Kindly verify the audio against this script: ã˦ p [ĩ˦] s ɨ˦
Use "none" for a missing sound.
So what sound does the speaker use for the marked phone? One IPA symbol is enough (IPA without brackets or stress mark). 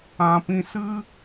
ĩ˦